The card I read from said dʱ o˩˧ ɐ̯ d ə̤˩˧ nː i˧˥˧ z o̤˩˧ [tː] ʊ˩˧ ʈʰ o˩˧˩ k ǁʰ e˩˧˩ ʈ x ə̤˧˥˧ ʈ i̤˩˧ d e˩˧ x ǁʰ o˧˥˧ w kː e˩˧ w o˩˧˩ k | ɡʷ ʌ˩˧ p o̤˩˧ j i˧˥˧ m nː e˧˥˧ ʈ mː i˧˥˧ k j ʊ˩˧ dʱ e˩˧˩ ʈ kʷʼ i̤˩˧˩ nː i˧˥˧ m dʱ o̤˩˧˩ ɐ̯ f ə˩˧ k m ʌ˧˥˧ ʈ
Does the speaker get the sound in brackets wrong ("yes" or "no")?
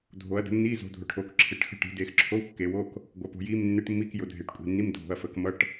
yes